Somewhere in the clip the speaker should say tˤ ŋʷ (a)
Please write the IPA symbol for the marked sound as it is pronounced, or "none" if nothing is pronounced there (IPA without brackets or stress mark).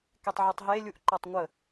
ə